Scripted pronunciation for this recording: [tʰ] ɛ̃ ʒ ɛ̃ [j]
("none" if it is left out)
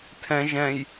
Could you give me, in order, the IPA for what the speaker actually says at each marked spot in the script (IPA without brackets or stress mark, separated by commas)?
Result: tʰ, j